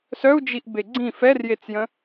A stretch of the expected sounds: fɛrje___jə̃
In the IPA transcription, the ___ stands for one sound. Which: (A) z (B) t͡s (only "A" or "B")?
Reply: B